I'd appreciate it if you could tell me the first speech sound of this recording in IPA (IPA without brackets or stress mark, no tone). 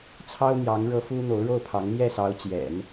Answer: t͡sʰ